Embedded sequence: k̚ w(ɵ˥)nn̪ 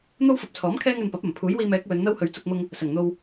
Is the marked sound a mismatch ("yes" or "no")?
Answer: yes